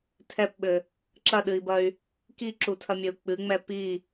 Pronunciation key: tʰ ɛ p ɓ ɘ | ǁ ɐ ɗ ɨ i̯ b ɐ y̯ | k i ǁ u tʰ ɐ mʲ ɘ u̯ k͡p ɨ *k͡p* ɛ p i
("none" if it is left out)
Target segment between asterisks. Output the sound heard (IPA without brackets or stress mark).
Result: ŋ͡m